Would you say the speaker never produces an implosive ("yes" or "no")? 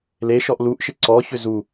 yes